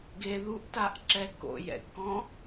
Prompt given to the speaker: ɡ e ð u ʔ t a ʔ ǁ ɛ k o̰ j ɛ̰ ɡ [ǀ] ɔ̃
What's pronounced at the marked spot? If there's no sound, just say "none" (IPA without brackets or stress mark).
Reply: k